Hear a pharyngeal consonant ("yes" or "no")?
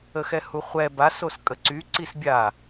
no